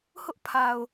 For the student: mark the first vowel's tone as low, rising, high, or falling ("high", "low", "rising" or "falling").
high